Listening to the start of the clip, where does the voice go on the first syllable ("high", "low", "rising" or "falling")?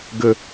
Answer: low